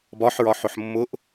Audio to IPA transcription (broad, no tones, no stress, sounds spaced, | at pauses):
b ɒ ħ ɹ ɒ ħ ʊ ħ mː ʊ ʔ